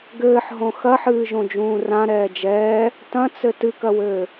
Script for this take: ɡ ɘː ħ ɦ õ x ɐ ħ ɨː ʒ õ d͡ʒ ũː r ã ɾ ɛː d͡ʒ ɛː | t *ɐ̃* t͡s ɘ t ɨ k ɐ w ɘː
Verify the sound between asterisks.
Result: correct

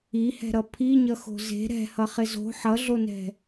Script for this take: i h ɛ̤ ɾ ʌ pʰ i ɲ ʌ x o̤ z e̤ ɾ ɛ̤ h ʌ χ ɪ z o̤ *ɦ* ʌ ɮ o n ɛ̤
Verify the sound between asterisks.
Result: incorrect: ħ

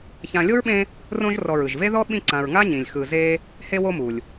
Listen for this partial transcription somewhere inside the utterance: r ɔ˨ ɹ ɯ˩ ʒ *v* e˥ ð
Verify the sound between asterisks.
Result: correct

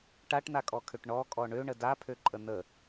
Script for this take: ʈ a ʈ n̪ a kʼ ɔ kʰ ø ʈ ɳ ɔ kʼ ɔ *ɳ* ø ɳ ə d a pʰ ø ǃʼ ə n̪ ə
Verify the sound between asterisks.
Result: correct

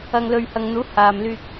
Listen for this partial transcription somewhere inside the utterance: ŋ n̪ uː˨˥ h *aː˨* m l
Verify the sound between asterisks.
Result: correct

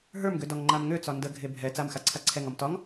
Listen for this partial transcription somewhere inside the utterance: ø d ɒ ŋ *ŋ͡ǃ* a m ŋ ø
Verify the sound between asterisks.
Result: correct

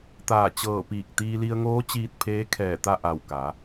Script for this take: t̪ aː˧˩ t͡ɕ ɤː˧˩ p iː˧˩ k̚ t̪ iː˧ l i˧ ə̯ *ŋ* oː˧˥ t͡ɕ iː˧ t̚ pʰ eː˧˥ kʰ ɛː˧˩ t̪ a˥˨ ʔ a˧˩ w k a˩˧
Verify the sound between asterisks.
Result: correct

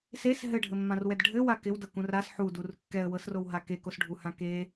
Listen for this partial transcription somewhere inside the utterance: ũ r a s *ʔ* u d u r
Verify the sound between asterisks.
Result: incorrect: ħ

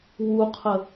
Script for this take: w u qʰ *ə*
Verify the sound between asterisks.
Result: correct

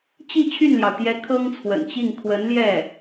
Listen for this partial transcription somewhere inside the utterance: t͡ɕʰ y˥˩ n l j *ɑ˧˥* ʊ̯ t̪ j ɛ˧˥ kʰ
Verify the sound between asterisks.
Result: incorrect: ɑ˩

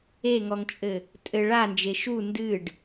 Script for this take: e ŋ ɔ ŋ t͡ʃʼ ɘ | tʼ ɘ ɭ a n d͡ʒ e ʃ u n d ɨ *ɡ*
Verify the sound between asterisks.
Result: incorrect: ɖ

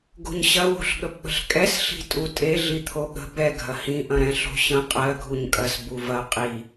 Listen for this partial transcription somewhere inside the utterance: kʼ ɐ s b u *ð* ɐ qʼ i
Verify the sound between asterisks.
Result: incorrect: v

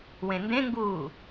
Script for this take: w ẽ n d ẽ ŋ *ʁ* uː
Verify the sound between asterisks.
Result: incorrect: ɡ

